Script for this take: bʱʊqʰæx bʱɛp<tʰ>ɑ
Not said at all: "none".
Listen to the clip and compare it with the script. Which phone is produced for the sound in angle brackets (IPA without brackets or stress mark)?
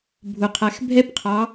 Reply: qʰ